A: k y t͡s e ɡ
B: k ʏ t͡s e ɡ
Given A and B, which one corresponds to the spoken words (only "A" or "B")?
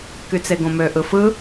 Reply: A